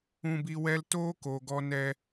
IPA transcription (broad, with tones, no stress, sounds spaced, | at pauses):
ũ˧ b i˧ w ɛ˦ l t oː˦ k o˨ ɡ ɔ˧ n ɛ˧